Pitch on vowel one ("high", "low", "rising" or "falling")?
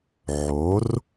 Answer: rising